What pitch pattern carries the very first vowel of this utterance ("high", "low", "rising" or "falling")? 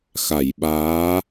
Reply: low